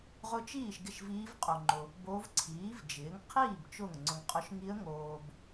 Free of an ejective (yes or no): no